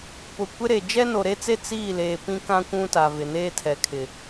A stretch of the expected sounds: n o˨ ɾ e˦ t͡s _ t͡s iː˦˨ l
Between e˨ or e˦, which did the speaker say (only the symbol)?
e˦